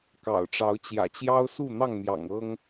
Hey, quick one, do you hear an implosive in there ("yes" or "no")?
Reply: no